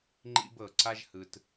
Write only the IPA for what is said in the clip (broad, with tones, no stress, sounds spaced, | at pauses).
ŋ͡ǃ ḭ˧ b ɤ˩ ǀ a˧ ʒ h ɯ˩ t